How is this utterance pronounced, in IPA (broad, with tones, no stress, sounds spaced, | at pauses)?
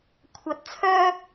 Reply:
kʷʰ ɐ˧ t̚ t͡sʰ œː˥